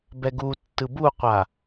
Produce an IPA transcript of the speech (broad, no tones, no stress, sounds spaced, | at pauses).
b ɛ ɡ u tː ɯ b u qʷ a